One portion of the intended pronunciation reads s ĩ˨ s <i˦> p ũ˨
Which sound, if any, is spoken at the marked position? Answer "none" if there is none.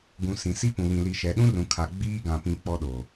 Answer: i˦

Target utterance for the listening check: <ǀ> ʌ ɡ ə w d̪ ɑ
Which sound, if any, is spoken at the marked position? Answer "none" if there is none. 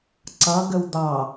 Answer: ǀ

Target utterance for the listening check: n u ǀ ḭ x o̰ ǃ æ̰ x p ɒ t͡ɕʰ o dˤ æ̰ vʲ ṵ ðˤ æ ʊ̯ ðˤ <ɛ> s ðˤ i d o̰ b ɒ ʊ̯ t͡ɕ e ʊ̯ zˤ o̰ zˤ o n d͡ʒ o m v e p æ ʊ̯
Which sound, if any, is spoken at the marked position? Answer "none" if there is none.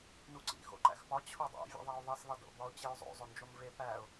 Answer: e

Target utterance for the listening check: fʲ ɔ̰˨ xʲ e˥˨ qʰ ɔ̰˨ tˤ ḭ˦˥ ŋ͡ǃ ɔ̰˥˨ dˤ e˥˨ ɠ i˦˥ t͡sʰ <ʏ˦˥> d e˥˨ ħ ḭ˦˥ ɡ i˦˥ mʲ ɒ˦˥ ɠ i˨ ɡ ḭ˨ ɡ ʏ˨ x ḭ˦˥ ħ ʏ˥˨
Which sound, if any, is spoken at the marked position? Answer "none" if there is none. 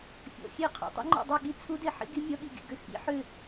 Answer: u˦˥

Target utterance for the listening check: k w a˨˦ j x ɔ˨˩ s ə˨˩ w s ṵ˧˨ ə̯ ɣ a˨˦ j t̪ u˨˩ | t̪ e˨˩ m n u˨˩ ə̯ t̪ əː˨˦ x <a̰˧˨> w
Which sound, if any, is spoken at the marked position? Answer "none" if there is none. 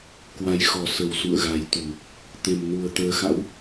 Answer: a̰˧˥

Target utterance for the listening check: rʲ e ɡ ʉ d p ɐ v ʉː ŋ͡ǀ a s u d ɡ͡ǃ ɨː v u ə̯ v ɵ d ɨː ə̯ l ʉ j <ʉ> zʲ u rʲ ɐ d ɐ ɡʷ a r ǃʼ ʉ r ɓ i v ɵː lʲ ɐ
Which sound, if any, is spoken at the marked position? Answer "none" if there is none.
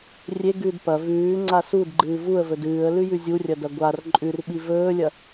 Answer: ʉ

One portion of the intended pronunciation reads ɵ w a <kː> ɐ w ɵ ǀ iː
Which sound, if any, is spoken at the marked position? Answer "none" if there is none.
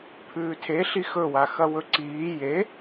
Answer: x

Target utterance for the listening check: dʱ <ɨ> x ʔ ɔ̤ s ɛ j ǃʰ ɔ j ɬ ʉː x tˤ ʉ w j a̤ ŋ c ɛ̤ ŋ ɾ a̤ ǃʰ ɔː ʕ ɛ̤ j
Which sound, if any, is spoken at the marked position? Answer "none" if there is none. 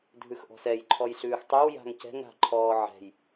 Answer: ʉ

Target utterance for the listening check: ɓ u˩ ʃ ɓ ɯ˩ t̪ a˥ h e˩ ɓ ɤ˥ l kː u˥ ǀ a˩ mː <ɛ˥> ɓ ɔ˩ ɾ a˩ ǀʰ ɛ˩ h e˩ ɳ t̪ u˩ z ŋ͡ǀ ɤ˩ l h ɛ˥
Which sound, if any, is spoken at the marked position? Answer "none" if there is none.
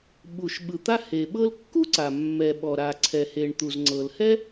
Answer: ɛ˩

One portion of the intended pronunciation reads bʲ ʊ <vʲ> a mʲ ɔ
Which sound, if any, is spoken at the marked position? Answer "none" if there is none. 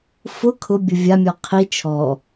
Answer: vʲ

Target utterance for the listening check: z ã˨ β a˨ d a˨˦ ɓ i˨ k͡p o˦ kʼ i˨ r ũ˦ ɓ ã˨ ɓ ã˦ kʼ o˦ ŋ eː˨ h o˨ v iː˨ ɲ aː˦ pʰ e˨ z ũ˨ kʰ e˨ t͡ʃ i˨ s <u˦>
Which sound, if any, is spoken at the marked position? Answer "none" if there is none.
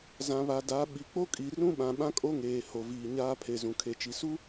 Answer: u˦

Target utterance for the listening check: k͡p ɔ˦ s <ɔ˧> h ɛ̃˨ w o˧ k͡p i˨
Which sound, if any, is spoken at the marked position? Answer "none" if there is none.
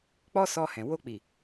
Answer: ɔ˧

